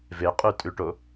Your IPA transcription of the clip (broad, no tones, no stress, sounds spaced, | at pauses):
v e qʼ ʉ tʼ ʉ ʈ o